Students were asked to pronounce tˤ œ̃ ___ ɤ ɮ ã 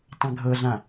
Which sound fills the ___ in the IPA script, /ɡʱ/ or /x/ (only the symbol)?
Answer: ɡʱ